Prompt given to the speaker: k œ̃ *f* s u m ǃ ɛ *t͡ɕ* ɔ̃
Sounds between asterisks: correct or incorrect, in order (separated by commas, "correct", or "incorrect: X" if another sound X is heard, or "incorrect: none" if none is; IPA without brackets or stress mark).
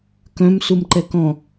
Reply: incorrect: m, incorrect: k